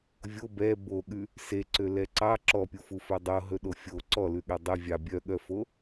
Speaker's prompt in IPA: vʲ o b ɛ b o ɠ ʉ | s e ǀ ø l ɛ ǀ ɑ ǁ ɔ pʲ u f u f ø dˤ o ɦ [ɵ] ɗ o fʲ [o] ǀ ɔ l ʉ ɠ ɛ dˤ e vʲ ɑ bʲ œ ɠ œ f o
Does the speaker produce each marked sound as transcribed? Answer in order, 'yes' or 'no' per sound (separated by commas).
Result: yes, yes